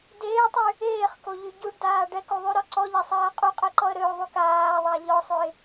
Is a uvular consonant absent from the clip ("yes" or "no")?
no